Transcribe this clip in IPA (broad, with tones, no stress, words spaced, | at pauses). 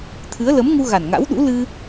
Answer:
t̪ʰɨ˨˦ə̯ lə˨˦mŋu˧ ɣa˨˩nŋa̰˧˥w ɗṵ˧˥ lɨ˧